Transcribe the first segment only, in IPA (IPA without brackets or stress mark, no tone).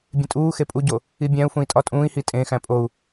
bʲ